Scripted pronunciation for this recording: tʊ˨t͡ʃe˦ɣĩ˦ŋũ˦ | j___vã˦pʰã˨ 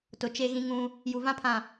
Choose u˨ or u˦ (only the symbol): u˨